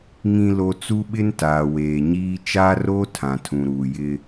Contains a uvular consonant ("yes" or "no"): no